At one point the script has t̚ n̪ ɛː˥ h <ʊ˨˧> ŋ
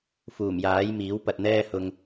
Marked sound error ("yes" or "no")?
yes